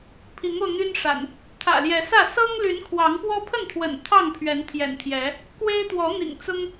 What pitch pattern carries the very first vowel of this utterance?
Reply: rising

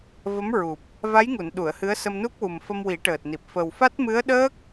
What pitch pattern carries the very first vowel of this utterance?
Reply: rising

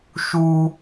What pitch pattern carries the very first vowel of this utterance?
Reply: high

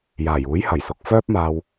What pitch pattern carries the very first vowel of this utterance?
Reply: low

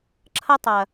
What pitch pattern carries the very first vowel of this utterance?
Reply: high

